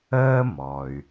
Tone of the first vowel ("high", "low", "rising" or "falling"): high